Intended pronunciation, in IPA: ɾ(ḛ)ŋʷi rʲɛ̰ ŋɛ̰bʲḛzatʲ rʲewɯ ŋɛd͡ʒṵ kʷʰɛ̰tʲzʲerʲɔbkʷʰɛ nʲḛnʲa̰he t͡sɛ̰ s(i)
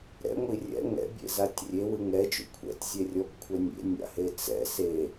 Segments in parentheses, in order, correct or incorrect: incorrect: ɛ̰, incorrect: e

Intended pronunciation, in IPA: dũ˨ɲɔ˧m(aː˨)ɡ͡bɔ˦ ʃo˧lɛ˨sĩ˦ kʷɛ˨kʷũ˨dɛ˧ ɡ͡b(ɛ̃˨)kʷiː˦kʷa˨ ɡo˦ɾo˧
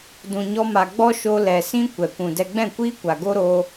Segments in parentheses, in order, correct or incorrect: incorrect: a˨, incorrect: ɛ̃˦˨

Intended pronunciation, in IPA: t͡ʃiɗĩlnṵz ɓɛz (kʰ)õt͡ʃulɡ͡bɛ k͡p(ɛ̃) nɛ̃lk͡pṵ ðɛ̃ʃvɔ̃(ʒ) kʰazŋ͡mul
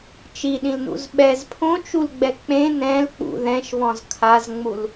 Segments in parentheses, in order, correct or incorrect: incorrect: pʰ, incorrect: ẽ, incorrect: z

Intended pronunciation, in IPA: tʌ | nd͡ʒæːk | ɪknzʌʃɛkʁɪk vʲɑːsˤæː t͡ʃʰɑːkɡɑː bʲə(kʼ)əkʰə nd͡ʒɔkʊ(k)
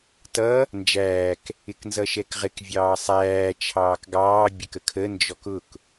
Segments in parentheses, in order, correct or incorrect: incorrect: k, correct

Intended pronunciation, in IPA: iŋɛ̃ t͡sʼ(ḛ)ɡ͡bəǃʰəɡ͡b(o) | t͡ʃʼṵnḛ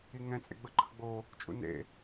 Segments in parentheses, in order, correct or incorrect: correct, correct

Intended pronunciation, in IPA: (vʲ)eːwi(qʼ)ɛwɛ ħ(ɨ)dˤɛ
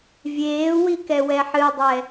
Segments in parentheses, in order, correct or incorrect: correct, incorrect: k, correct

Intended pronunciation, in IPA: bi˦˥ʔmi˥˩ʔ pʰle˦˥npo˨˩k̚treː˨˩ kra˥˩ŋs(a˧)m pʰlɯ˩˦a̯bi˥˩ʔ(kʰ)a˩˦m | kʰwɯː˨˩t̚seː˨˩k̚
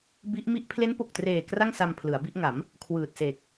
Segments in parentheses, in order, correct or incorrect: correct, incorrect: ŋ

